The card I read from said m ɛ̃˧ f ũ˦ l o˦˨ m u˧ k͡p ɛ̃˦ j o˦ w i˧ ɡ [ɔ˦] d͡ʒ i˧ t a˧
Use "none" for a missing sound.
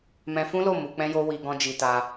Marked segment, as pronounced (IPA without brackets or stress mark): ɔ̃˦